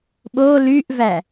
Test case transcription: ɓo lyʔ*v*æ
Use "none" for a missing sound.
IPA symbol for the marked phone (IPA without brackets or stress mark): v